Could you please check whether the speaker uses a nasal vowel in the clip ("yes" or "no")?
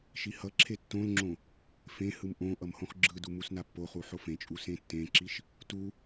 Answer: yes